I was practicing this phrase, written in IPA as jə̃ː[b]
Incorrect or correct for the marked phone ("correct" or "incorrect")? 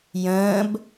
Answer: correct